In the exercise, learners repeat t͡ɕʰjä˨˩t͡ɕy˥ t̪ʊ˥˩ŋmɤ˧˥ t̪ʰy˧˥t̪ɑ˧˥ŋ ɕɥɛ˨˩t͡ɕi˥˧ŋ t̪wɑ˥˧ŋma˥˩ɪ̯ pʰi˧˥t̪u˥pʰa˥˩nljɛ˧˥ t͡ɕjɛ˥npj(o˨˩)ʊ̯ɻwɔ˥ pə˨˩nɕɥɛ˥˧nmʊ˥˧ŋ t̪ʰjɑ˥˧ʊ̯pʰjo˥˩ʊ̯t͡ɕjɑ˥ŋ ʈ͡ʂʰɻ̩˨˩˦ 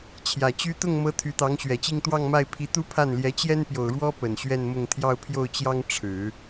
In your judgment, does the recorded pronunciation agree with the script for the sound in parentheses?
yes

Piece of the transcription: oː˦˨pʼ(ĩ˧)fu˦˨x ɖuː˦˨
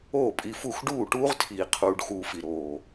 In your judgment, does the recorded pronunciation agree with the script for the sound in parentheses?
no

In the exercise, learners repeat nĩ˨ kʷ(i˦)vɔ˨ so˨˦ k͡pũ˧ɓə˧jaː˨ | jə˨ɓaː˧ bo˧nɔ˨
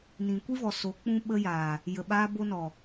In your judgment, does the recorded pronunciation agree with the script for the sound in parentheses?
yes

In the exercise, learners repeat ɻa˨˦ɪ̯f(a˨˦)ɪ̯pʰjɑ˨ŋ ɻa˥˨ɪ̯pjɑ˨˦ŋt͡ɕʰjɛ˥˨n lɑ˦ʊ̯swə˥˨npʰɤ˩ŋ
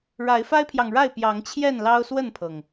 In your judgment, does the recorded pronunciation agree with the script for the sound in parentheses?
no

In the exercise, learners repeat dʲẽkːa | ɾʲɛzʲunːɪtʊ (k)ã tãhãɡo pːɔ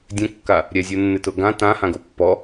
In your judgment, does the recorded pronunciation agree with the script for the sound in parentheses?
no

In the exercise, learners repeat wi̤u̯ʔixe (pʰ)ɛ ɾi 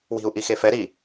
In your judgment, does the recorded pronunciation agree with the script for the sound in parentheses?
no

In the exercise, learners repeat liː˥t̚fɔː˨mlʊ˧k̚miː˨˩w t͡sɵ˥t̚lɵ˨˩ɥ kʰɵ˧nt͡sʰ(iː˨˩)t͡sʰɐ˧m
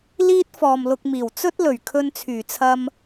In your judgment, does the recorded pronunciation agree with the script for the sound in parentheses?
no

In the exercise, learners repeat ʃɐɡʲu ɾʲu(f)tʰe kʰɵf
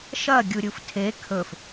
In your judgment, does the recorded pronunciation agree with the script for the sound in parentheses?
yes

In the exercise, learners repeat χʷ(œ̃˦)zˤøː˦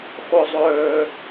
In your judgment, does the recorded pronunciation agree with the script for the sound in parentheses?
no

